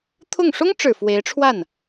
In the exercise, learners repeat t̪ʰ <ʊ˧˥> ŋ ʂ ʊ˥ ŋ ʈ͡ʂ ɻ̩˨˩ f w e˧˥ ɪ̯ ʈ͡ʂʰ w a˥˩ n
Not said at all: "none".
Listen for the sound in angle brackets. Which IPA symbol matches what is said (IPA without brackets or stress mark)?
ʊ˥˩